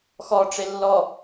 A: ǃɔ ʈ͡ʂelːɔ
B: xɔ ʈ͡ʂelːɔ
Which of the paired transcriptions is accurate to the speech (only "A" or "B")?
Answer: B